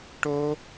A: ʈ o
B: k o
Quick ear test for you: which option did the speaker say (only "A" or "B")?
A